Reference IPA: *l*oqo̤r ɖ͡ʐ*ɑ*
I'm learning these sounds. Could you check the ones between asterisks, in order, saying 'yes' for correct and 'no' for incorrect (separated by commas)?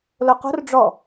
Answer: yes, no